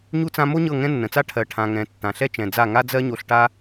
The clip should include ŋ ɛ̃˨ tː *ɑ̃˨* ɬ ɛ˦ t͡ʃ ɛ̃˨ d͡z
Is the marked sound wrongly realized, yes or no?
yes